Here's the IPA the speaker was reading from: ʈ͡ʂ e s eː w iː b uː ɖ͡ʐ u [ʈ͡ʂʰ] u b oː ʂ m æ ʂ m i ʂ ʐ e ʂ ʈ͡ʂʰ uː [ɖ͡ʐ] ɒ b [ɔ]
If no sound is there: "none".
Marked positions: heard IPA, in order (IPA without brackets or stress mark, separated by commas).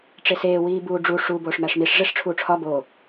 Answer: ʂ, ʈ͡ʂʰ, o